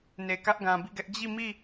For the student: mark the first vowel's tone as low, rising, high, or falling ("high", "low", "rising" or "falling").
low